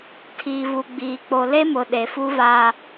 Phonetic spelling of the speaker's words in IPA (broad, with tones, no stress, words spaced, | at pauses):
tʰiː˨vu˨ ɡ͡biː˨k͡po˨le˦ mʊ˨ɗe˨fu˦ va˦